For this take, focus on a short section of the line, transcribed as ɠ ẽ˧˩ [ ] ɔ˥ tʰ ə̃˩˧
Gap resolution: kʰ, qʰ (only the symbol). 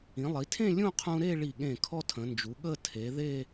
kʰ